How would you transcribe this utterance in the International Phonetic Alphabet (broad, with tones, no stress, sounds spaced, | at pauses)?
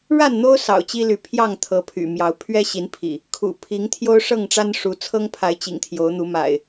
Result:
ɻ a˥˨ n n̪ o˦ ʊ̯ s ɑ̰˨˩ ʊ̯ t͡ɕ i˦ l y˨˦ pʰ j ɑ˥˨ ŋ t̪ʰ ɤ˨˦ pʰ y̰˨˩ m j ɑ˨˦ ʊ̯ pʰ ɥ ɛ˦ ɕ i˨˦ n pʰ ḭ˨˩ | kʰ ṵ˨˩ pʰ i˨˦ ŋ t̪ʰ j o˦ ʊ̯ ʂ ɤ˥˨ ŋ ʈ͡ʂ a˦ n ʂ u˨˦ t͡sʰ ɤ˦ ŋ pʰ a˨˦ ɪ̯ t͡ɕ ḭ˨˩ ŋ t̪ʰ j o˨˦ ʊ̯ n̪ u˨˦ m a̰˨˩ ɪ̯